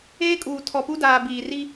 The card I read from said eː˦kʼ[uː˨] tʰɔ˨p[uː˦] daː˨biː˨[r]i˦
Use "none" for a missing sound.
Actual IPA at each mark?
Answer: uː˨, u˦, r

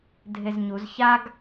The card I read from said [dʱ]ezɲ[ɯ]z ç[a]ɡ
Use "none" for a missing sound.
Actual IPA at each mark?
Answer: dʱ, u, a

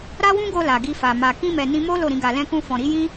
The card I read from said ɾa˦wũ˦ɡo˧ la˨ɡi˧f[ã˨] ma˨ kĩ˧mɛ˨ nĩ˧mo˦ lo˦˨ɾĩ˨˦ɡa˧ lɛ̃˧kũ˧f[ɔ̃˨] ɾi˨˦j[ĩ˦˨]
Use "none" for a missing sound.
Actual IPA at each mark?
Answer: a˨, ɔ̃˨, ĩ˦

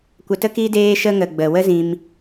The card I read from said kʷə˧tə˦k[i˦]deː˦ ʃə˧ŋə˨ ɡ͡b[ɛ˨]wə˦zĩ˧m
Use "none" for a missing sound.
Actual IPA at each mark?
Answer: i˦, ə˨

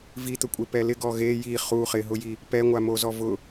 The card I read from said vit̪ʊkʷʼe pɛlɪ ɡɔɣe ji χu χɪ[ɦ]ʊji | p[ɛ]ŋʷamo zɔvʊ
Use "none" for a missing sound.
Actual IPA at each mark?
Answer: ɦ, ɛ

